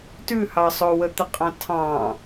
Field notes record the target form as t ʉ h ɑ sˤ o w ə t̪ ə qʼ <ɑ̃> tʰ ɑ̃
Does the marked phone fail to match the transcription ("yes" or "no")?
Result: no